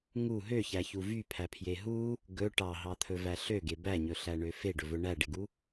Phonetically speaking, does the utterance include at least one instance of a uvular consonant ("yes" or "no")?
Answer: no